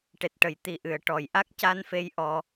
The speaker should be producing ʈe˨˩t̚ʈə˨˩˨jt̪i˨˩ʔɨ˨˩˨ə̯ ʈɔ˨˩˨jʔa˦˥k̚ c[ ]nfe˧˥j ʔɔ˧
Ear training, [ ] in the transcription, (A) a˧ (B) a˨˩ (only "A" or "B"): A